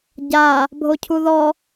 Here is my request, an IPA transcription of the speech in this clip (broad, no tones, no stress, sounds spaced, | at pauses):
ɟ a | bʱ o cʰ u ð ɔ